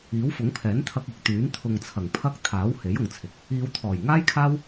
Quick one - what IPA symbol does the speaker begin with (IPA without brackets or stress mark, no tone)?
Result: iː